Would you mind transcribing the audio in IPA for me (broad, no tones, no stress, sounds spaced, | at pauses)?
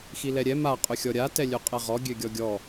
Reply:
x i l ɛ ɾʲ ɛ m a qʼ ʏ xʲ ɔ ɾʲ a t ɛ lʲ ø qʼ ɛ ʁ ɔ ɡʲ ø ɡʲ ɔ ɡʲ ɔ